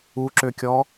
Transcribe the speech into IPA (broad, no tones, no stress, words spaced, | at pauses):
uǁøkʲɔ